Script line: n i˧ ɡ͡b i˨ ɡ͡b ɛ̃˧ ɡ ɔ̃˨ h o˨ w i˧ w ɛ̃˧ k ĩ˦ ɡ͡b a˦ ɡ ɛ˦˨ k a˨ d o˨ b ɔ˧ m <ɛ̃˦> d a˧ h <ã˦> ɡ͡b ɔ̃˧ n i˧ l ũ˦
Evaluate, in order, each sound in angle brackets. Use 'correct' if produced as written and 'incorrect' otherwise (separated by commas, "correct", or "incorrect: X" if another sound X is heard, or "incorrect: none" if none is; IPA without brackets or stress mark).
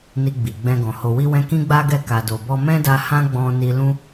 correct, correct